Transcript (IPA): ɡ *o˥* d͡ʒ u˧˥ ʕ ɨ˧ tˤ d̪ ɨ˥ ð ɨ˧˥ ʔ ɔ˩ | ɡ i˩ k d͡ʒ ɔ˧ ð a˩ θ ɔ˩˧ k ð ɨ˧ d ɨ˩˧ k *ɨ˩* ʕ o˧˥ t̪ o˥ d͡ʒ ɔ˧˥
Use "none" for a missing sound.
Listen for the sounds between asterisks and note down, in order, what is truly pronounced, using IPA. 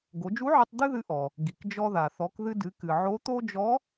o˩˧, ɨ˩

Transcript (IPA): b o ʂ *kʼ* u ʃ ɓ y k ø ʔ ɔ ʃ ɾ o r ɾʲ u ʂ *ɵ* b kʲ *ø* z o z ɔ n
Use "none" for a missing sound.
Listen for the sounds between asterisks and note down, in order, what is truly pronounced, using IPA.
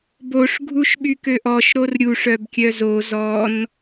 ɡʱ, œ, œ

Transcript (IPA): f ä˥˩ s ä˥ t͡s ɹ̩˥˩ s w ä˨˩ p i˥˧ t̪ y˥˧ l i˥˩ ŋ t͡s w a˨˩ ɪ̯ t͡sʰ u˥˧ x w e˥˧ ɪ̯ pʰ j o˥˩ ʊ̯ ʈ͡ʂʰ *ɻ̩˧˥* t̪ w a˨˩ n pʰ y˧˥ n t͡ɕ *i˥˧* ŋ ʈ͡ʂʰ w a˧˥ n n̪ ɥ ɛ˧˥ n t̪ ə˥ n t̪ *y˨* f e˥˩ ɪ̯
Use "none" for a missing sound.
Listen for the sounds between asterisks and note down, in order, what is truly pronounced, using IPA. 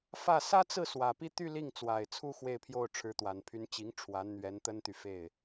ɻ̩˧˥, i˧˥, y˨

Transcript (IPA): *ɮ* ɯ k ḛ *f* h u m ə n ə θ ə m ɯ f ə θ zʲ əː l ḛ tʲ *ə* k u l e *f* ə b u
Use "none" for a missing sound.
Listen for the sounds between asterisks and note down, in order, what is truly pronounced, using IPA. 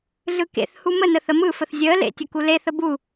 ɮ, θ, ə, θ

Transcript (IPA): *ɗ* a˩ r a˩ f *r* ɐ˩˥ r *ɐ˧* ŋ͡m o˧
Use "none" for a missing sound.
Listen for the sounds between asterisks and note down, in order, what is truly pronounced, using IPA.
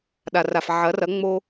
ɗ, ʕ, ɐ˩˥

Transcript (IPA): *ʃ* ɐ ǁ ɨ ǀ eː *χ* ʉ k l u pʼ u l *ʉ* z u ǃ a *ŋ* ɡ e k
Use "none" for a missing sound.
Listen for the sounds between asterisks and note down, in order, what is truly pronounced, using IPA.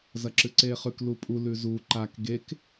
z, χ, ʉ, k

